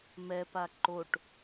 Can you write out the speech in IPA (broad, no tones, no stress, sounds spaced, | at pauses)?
m ɛ p a ǃ o ʈ